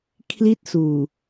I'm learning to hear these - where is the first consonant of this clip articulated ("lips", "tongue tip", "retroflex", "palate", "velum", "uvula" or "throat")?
velum